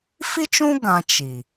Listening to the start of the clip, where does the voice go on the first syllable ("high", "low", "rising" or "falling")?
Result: high